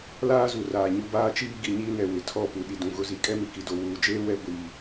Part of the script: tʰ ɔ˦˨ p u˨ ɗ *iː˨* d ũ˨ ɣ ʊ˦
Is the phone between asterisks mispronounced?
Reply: yes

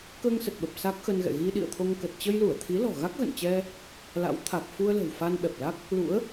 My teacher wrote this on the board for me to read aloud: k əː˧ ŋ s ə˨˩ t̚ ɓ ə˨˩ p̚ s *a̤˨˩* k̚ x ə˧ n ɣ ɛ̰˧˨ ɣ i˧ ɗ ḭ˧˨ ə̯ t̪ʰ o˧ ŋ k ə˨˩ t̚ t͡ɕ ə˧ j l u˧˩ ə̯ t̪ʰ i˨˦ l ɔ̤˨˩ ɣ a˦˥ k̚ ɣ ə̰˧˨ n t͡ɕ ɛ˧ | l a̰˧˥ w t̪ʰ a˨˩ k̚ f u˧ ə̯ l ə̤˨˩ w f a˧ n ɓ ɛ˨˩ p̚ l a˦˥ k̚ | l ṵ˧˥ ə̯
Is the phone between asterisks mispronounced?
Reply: yes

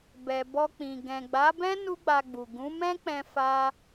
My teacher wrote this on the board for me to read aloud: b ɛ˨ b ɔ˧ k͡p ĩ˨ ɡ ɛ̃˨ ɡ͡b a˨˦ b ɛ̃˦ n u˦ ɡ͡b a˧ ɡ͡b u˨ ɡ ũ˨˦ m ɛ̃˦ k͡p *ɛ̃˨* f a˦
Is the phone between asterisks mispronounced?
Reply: yes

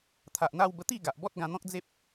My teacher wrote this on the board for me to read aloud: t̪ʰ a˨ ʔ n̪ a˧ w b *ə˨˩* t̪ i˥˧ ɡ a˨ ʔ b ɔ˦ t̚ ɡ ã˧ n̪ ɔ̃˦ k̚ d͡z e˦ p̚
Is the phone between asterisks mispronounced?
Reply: yes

